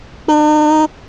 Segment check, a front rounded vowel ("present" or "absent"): absent